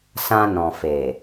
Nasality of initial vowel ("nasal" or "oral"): nasal